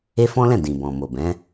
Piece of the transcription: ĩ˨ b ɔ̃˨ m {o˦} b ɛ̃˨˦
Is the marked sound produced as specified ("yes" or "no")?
no